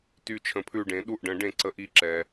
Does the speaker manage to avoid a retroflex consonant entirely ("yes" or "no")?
no